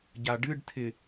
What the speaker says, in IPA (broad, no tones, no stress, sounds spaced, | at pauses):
ɟ a ɖ ɨ ɖ tʰ ɪ